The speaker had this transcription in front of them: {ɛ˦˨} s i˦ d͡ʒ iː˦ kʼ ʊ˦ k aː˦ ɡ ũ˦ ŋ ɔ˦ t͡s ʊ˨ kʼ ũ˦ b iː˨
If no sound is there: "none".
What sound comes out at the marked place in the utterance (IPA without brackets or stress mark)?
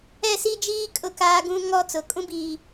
ɛ˦˨